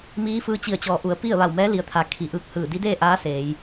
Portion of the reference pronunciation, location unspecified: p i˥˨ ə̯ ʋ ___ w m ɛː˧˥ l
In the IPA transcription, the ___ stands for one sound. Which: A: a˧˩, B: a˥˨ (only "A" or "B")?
A